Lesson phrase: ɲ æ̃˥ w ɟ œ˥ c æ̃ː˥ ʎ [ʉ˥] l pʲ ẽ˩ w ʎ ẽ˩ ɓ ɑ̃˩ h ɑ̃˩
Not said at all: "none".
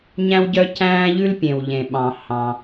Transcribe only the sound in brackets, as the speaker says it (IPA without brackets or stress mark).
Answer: ʉ˥